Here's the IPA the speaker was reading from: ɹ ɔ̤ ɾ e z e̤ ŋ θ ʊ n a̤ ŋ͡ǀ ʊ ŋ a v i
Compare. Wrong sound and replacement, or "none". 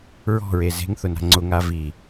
ɾ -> ɹ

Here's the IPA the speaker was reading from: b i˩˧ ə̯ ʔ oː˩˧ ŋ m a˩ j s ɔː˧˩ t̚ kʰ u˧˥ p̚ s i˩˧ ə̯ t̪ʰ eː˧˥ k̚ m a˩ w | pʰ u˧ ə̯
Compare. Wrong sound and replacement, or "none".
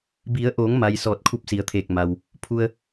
eː˧˥ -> eː˧˩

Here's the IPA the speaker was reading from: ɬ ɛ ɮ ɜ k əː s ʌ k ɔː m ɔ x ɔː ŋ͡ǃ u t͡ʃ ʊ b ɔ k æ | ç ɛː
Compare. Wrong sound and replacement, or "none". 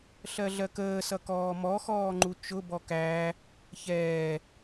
ɛ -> ɜ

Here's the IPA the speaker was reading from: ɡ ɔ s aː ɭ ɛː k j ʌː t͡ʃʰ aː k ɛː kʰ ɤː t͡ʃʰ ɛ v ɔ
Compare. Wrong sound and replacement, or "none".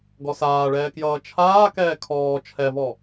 ɤː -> ɔː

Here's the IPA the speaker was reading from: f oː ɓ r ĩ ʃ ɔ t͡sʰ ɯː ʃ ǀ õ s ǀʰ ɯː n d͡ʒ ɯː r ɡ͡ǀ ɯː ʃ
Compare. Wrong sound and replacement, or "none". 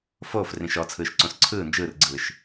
ɓ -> f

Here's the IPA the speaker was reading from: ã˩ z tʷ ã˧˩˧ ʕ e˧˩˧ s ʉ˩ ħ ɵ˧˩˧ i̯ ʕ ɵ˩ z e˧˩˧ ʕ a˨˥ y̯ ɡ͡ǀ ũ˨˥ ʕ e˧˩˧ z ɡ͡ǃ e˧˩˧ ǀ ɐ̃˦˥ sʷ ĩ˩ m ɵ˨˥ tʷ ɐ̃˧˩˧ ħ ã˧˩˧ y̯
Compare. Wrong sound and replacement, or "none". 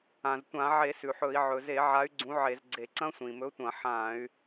ɡ͡ǃ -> ɡ͡ǀ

